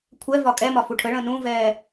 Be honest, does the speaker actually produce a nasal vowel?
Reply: yes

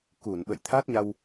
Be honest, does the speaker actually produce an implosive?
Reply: yes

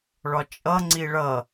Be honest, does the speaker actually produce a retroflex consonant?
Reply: yes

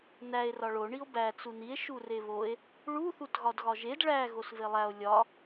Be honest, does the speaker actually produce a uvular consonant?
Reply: no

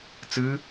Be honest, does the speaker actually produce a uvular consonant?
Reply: no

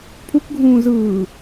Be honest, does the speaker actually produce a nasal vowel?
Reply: yes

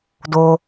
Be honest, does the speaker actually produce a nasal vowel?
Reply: no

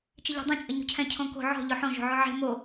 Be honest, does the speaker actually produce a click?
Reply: no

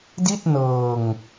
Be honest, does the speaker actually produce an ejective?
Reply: no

